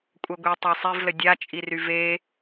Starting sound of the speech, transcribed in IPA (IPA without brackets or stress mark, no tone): kʷʼ